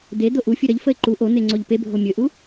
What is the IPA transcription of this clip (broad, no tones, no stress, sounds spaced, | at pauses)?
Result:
d̪ e d̪ o ʔ u fʲ u ɾ ʌ ʎ f ə ɪ̯ ǃ u ʔ o n̪ e ŋ͡ǀ o ʎ p e bʱ o mʲ ɵ ʔ u